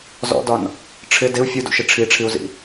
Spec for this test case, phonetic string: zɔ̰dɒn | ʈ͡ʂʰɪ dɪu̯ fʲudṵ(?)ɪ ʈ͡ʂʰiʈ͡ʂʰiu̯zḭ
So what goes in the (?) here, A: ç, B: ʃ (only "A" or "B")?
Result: B